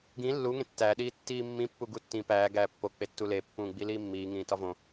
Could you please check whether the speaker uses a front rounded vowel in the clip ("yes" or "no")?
no